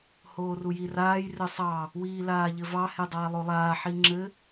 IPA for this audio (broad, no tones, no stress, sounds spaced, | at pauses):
h oː r u j i r aː j r ɘ sˤ ɑ | w iː l aː ʎ ɘ v ɑ h e dˤ aː lˠ o lˠ aː ħ i ŋ͡ǁ ɘ